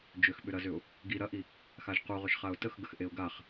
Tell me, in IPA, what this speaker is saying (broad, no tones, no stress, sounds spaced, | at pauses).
d͡ʒ ʏ x ɓ ʏ ɾ ɐ z ʏ ʊ̯ | ɡ i ɾ ɐ ʔ i | x a ʒ q u ʁ ʏ ʃ χ a ʊ̯ t ə x ɡ ə x ʔ e ʊ̯ ɡ a χ